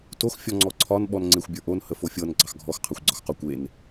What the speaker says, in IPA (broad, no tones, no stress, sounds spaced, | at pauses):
t o x fʲ ɔ ŋ͡ǀ ɔ ǀʰ ɒ n ɓ ɔ n ŋ͡ǀ e xʷ bʲ ə˞ ʔ o n h ə f o fʲ ɤ n ɡ͡ǀ ɑ x ɡʱ ɔ x qʰ ɑ xʷ ɡ͡ǀ ɒ x q ɔ kʷ e n